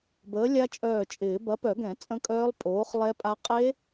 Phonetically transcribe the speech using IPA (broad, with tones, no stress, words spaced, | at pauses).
bəː˨˥lʲa˦˥t͡ʃʼœː˧˩t͡ʃʼɪː˨˩˦ bɐ˨˥pœ˨˩˦ɡɛ̃˨˩˦ t͡sʼə̃˦˥ kʼœː˦˥lˠ pʼoː˨˥χlˠɛ˦˥pʼa˦˥ qʼe˦˥